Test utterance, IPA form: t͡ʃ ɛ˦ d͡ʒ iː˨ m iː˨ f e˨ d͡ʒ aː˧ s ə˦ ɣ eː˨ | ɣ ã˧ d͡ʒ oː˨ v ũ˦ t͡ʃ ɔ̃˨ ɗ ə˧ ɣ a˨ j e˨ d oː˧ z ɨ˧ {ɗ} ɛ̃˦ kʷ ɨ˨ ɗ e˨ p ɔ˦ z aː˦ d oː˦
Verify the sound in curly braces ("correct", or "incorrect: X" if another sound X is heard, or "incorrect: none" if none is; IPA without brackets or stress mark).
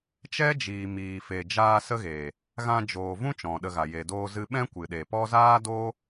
incorrect: ɓ